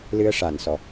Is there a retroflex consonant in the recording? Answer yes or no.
yes